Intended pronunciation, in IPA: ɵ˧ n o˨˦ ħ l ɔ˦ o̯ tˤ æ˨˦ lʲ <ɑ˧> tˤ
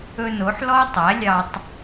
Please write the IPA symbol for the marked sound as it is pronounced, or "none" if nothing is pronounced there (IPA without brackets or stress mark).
ɑ˧